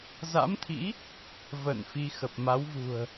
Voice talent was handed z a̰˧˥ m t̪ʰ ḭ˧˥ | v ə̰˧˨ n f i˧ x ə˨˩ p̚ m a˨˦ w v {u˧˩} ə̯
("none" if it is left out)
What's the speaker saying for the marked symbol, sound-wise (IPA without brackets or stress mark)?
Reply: ṳ˨˩